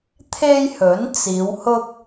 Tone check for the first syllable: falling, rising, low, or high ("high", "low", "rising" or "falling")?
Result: high